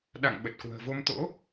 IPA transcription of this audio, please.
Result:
ɗ a̰˧˨ ŋ ɓ ə˨˩ t̚ k w ə̤ː˨˩ v o˧ m t̪ o̰˧˥

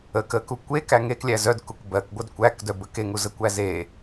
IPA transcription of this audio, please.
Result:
ə k ə k u kʷ e k æ ŋ e k lʲ æ z œ d k u k b ɜ k ɡʷ ɜ d kʷ æ k d œ b ə k e ŋ u z ə kʷ æ z e

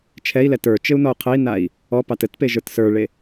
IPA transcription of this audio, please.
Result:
t͡ʃʰ ɛ i̯ l ɛ t ə˞ t͡ʃ ɘ u̯ n ɔ u̯ qʰ ɘ i̯ n a i̯ | ɔ p ɑ t ɘ t p e ʒ ə˞ t s ə˞ ɭ e

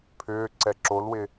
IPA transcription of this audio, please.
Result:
pʰ ʏː ǀ ɛ ǁ o l w ɪ

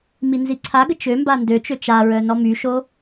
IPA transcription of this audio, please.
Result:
m i n z i ǀʰ a ɡ ə t͡ʃ ø m b a n d ø t͡ʃ ø t͡ʃ a ɹ œ n ɔ m y ʃ o

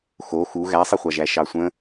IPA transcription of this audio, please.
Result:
x o x u ɣ æ sˤ i χʷ ɑ ʒ æ ʃ ɑ sʷ ə̃

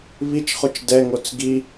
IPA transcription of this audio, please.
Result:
β i t͡ʃ χ o t͡ʃ d ɛ ŋ o t͡s ɡ i

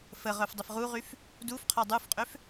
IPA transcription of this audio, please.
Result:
f ə ʁ œ f dˤ ə f ʁ u ʁ y f | d u f qʰ ɔ dˤ u f qʼ ø f

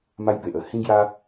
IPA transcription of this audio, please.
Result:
m a˦ j b e˨ ʔ ə˧ h ĩ˦ ɡ j a˦

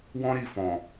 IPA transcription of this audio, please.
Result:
w ɔ̃˦ ɾ i˦˨ f ɔ̃˨

